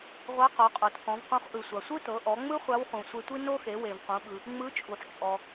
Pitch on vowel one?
rising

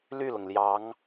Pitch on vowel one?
falling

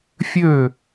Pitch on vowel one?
falling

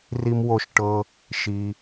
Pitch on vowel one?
high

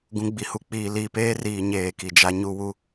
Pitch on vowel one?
low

